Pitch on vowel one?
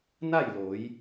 falling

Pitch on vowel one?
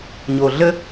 low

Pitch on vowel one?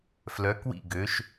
rising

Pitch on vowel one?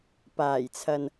low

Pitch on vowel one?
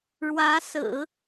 rising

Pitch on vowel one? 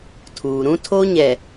low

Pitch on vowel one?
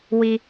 high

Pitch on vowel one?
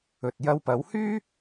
low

